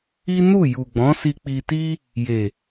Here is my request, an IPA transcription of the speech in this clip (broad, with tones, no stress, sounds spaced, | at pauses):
i˦ n u˦˨ j u˨ ɡ͡b ɔ̃˨˦ s i˧ k͡p i˧ t i˦ | j e˨